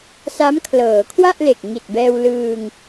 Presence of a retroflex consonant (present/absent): absent